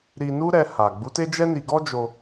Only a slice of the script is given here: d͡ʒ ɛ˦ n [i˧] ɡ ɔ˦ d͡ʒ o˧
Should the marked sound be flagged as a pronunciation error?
no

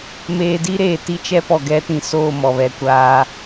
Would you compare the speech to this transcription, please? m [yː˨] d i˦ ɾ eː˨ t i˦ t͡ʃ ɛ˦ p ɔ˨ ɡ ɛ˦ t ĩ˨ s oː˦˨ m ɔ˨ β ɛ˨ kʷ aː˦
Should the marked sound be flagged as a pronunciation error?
yes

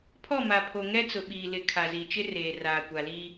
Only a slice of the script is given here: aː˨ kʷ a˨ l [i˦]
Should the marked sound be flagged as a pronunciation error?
no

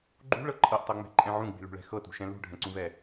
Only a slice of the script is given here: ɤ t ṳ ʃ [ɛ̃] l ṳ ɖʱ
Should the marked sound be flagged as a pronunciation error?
no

